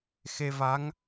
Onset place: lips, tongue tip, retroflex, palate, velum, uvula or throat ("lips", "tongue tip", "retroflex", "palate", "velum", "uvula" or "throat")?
velum